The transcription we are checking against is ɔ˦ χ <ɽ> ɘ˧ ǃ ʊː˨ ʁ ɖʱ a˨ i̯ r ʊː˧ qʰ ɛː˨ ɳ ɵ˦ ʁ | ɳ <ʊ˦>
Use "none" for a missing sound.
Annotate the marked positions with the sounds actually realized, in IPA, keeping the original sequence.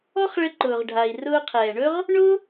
ɭ, ʊ˦

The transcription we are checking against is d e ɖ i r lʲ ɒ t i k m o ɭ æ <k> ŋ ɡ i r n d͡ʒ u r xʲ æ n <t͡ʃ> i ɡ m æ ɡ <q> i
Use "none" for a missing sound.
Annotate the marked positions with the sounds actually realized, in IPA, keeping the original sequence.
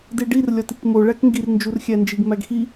k, d͡ʒ, x

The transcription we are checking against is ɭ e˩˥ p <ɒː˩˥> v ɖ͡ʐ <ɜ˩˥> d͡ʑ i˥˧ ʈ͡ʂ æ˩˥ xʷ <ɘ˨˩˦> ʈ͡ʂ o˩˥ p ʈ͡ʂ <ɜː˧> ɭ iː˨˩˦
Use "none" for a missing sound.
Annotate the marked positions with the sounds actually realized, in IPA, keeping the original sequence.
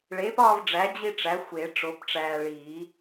ɒː˥˧, æ˩˥, e˨˩˦, æː˧

